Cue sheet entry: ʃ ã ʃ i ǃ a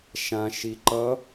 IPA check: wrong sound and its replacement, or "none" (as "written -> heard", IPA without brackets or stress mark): a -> ʌ